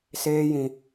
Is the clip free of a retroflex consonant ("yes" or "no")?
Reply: yes